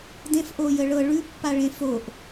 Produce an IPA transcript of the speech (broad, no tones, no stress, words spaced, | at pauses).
dẽf ʔojəɭɤ ɭʉpːaɭẽ foʔ